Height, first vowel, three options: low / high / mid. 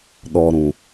mid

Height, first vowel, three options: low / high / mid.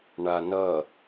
low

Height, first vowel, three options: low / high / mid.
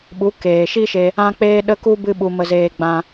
high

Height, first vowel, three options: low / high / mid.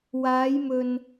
low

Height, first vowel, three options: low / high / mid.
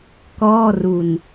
mid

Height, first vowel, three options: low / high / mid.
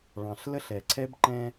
low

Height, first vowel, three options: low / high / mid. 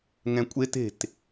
mid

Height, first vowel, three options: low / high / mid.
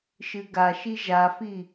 high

